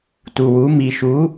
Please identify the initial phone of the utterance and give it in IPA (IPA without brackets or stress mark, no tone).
t